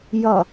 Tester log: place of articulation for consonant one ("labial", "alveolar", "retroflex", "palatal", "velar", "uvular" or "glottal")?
palatal